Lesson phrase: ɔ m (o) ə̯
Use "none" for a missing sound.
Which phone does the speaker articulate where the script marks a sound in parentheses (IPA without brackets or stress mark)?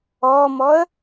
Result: ɔ